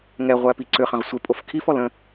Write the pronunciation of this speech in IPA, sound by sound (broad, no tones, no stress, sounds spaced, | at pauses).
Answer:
ŋ ɛ ʁʷ æ p i ǀ ʏ χ ɐ̃ ʁ sʷ e pʼ o f kʰ i f ɔ l ə̃